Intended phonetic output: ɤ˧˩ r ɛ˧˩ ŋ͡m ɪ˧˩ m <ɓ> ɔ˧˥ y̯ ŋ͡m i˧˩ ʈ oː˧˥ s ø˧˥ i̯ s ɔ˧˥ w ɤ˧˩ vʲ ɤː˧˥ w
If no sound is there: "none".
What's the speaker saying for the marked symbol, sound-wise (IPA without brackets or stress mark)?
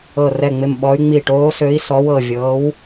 ɓ